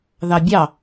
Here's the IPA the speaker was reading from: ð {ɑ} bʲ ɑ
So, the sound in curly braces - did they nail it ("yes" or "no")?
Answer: yes